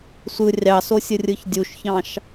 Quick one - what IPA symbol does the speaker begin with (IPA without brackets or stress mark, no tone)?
sʷ